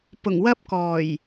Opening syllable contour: low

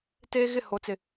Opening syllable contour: high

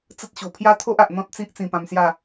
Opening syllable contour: high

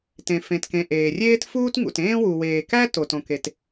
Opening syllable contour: low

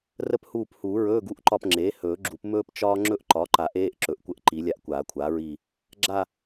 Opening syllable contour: high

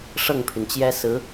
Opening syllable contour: falling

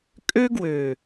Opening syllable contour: high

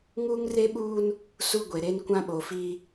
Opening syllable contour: high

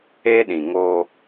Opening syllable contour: high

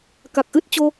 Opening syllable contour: low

